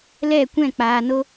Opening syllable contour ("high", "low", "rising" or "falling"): falling